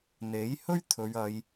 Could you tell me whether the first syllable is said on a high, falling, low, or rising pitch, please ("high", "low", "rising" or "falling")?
rising